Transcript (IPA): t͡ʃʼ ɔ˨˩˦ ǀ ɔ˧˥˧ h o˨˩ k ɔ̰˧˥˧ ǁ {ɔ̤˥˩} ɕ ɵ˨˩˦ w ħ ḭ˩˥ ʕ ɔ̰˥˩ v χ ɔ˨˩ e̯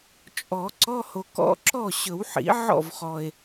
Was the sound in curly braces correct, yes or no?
no